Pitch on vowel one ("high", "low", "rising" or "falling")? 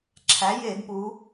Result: rising